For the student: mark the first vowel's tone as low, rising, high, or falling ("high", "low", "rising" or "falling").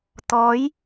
rising